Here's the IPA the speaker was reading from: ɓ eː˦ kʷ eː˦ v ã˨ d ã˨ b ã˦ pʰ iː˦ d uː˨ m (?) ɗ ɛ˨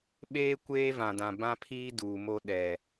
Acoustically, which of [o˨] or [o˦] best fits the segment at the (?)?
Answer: o˦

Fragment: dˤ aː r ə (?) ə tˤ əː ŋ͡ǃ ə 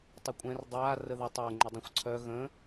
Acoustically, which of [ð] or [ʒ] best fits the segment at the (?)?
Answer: ð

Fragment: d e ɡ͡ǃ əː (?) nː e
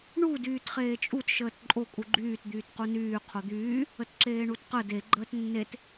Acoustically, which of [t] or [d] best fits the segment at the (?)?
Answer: t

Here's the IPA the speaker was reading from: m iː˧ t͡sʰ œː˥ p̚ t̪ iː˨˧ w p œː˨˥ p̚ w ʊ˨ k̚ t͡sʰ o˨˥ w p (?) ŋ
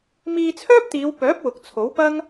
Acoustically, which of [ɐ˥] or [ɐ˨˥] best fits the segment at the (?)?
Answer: ɐ˥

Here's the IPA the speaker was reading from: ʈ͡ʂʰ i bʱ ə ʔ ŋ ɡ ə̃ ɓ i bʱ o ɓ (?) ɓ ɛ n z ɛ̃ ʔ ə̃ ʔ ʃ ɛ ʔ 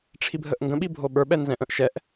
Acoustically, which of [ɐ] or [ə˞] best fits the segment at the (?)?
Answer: ə˞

